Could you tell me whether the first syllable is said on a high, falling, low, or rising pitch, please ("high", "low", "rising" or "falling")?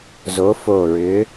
rising